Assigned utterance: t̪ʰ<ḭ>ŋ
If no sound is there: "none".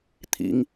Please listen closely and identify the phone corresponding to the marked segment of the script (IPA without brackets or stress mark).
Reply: ḭ